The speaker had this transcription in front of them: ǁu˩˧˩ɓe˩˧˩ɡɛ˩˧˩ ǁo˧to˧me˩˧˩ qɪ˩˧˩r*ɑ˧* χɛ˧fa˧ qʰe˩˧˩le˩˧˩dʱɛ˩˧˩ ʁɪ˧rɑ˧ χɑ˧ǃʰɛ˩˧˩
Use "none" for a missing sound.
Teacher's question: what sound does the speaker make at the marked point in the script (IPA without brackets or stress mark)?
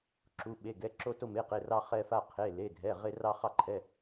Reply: ɑ˧